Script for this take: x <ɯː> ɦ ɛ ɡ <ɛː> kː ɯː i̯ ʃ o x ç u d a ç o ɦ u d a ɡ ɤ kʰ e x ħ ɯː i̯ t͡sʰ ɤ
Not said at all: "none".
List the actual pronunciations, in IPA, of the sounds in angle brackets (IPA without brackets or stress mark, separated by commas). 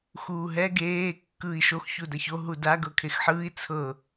uː, eː